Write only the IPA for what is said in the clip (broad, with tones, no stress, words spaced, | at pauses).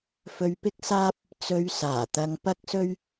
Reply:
fɵ˧ɥpɪ˥k̚saː˥p̚ | t͡sɵ˧ɥsaː˨˩t̪ɐ˧ŋ pɐ˥k̚sɵ˥ɥ